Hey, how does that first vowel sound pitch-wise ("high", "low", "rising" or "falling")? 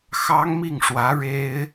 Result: high